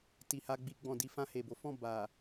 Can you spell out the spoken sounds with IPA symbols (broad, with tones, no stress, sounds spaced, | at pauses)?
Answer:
t i˨ h a˧ ɡ͡b i˧ ɡ͡b ɔ̃˨ d i˨˦ f ã˧ h e˨ b o˨˦ f ɔ̃˦˨ b a˨